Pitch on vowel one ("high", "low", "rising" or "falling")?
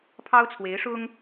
high